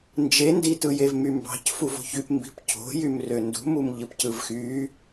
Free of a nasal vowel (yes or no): yes